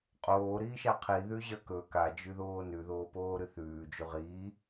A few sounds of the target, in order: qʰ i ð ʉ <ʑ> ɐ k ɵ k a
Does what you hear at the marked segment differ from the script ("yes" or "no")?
no